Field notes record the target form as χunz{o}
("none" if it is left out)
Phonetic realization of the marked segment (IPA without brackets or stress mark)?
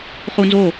o